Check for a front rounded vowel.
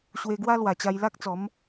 absent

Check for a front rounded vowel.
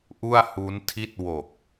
absent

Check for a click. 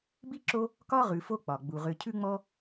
present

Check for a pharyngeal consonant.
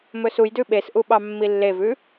absent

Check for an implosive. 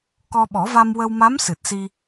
present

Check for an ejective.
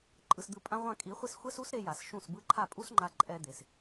present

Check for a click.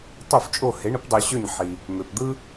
absent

